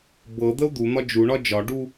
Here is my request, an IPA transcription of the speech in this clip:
b ɤ d̪ ə u̯ d̪ u n̪ ɒ d͡ʒ u ɳ ɒ d͡ʒ ɒ ɖ u

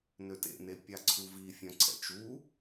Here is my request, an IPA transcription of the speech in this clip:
n ø t ḛ n e pʲ a ǀʰ u v i fʲ œ̃ ǀʰ ɛ̰ t͡ʃ u

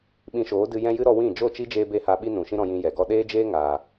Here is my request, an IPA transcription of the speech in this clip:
ɓ ĩ˧ ʃ oː˨˦ d ɨ˧ j ɛ̃˦ j ɨ˦ ɾ ɔ˧ w ĩ˦˨ d͡ʒ o˦˨ t͡ʃ i˦ d͡ʒ eː˧ b e˦ h a˧ ɓ i˦ n ũ˨ ʃ ĩ˦ ɾ ɔ̃˧ j ĩ˧ j ɛ˨ ɡ ɔ˦ ɗ eː˦ d͡ʒ eː˦ ŋ aː˨

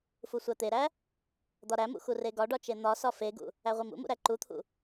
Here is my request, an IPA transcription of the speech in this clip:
f u sʷ æ t̪ e ɾ æ | d̪ ɒ ɾ æ m ṵ x u r e ɡ ɒ ɖ ɒ t͡ʃ e n̪ ɒ s ɒ f e ɡ ṵ | æ ʁʷ i m ṵ m ṵ ɾ æ ǃ u t̪ʰ ṵ

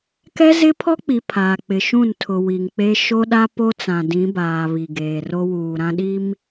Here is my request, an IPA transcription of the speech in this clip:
k ɛ˦ z ɪ˦ pʰ ɔ˦ k͡p i˨ pʰ aː˨ k͡p ɪ˨ ʃ ũ˦˨ n tʰ ʊ˨ w i˨ ŋ k͡p e˦ ʃ o˦ ɗ a˦ p o˦ t͡s ã˨ d ĩ˨˦ b aː˨ β i˨ ɡ eː˨ r o˦ w uː˨ ɾ ã˦ ɗ i˦ m

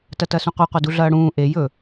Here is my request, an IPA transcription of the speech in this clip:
t ɐ t ɐ s ũ qʷ e qʷ ɐ d u ɮ ɐː ɽ ũː ʔ e j ɵ

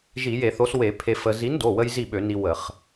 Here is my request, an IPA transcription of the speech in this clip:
ʒ i˧˩˧ j e˧˩˧ θ o˨˥ s w e˧˩˧ pʰ e˧ f ə˧ z i˨˥ n d o˩˧˩ w ə˧ j z i˥˨ ɓ ø˧˩˧ n i˧ w ə˧˩˧ χ

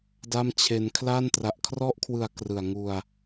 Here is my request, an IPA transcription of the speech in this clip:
d a˥˩ m t͡ɕʰ e˧ n kʰ l a˥˩ n t r a˨˩ ʔ kʰ r ɔ˦˥ ʔ kʰ w ɯ˨˩ a̯ k r ɯ˨˩ a̯ ŋ u˧ a̯

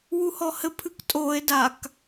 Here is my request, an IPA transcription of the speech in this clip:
w u h ɔ h ɘ pʰ ɨ k tʼ o e̯ d a k

